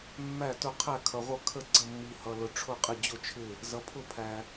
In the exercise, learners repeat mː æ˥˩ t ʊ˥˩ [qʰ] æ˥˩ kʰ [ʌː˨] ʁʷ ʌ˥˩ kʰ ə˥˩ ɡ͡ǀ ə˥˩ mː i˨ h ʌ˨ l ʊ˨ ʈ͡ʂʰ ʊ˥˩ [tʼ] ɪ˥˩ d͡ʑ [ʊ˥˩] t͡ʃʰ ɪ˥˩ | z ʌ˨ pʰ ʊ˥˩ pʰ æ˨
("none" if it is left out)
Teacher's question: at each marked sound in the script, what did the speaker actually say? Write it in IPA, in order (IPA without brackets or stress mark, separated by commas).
qʰ, ʌ˨, qʼ, ʊ˥˩